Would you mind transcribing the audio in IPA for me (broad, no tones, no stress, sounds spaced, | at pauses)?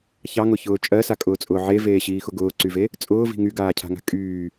ç ɑ ŋ ʊ ç ʊː t͡ʃʼ ɜ s a kʼ ʊː t͡sʼ ʊː ʕ e v eː ɕ iː x ʊ ɡ ʊː ǀ y v e | t͡sʼ ʊː v i̤ ŋ y ɡ aː cʰ a̤ ŋ a̤ kʼ yː